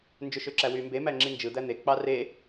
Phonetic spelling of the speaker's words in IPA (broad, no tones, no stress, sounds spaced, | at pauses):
n d͡ʒ ø ʃ ø ǁ æ w y m b e m æ ŋ͡ǁ i n d͡ʒ ɯ d̪ æ n̪ e k͡p ɑ r e